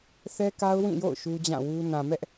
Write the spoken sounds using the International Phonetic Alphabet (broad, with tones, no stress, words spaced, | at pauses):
θɛ˦ka˦ʊ̯wĩ˦˨jo̰˦˨ʊ̯ ʃu˦d͡ʑã˦˨wu˦ nã˨mɛ˦ʔ